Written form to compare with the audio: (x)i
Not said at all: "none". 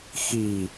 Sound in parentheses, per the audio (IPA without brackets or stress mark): x